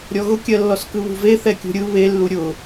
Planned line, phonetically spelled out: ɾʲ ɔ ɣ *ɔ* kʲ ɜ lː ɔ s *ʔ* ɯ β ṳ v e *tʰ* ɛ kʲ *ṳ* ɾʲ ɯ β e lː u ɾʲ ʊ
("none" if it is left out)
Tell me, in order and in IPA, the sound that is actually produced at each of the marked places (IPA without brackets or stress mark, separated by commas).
ʊ, k, θ, ṳ